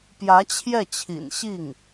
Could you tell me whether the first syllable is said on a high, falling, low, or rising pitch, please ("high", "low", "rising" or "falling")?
rising